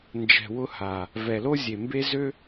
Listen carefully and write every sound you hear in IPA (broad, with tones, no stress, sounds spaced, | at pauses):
n d͡ʒ ɛ̤˨ w ʊ˧ h a˨ | v ɛ˨ l o˦ zʲ e˨ m b e˦ z ø˦